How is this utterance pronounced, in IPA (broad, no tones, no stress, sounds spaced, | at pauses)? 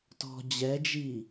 t ɔ̤ d͡ʑ ɛ d͡ʒ i